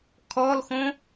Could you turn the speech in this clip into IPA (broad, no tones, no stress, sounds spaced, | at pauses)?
kʰ ɔ l x õ